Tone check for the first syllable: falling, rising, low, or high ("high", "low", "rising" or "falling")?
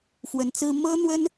rising